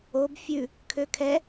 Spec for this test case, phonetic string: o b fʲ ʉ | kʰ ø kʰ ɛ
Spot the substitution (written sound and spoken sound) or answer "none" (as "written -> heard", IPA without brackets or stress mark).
none